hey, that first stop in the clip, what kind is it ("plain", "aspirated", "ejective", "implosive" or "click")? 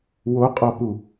ejective